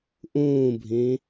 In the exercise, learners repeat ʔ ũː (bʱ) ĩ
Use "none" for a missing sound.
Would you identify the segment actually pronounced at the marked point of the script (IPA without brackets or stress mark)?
bʱ